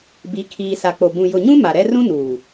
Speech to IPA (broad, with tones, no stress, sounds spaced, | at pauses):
b i˨˦ kʰ iː˨ s a˨ k͡p o˨ b ũ˨ j ʊ˨ ɲ ũ˦ m a˨ ɾ ɛ˦ r ũ˦ n uː˨